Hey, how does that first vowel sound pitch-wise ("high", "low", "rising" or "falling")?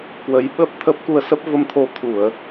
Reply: rising